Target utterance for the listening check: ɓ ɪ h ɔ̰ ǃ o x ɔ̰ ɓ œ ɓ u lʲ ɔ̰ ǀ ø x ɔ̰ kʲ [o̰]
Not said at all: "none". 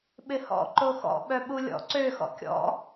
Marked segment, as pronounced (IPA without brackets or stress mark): ɔ̰